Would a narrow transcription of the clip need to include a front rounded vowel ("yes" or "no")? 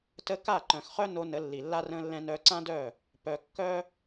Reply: yes